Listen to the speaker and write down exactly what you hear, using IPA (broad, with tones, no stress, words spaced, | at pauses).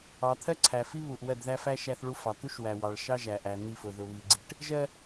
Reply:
ɑ˨t̪ʰɜ˦ǀʰæ˨fi˦ βu˨ʔwɜ˦˨dðæ˦fæ˦ ʃæ˦θɭu˦fɑ˨ t̪u˦ʃ wæ˨wɑ˨ɭ ʃɑ˦ʒæ˨ʔæ˨ n̪i˦˨fʊ˨ ðʊ˨βi˨ɡ͡ǀi˨˦ʈ | ʒɜ˦